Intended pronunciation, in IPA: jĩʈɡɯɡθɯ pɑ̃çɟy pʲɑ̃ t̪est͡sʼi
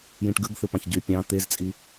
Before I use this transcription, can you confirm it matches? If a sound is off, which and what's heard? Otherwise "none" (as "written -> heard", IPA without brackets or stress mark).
s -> z